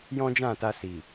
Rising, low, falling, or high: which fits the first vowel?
high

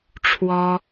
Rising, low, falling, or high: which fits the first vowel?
high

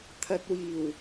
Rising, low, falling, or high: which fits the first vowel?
low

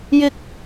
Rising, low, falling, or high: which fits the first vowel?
high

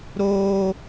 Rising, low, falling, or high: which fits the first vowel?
high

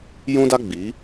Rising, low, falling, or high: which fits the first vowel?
high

